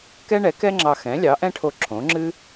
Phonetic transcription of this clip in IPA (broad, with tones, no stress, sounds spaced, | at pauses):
k ɛ˥ ɳ ɛ˩˥ k ɛ˥ ŋ͡ǁ ɑ˧ x ɛ̃˩˥ lʲ ɑ˩˥ ʔ ɛ̃˥ ʈʰ o˧ ǁʰ õ˩˥ ŋ͡ǁ ɨ˥